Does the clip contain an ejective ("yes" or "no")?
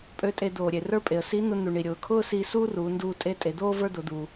yes